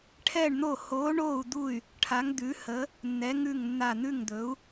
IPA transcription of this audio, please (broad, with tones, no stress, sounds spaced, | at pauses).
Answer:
ʈʰ ɛ˦˨ ɳ n̪ o˦˨ h oː˨˦ ɳ oː˦˨ u̯ d̪ u˦˨ y̯ | ʈʰ a˨˦ ŋ d̪ ʉ˨˦ h ə˨˦ | nː ɛ˨˦ ŋ ʉ˦˨ ŋ nː a˦˨ n̪ ʉ˦˨ ŋ d̪ ɵ˨˦ u̯